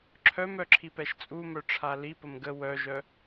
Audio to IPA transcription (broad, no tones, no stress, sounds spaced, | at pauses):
ǁʰ œ m œ ǁʰ i p ɛ ʃ t͡sʼ u m œ ʈ͡ʂʰ a l i p ə m ɡ ə w œ ʒ œ